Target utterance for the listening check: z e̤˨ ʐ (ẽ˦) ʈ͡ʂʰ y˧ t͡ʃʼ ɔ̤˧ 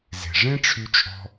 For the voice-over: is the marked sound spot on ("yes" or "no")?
yes